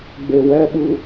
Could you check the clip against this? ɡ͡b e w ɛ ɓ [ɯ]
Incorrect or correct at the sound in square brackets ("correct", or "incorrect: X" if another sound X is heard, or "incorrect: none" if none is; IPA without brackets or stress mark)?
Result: correct